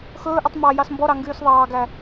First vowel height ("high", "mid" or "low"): mid